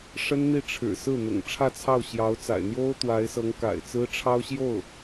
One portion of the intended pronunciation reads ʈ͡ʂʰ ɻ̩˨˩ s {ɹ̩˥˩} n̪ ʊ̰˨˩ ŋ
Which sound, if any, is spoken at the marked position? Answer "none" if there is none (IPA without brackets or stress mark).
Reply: ɹ̩˥˩